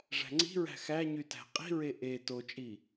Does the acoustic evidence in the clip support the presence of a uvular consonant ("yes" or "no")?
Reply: yes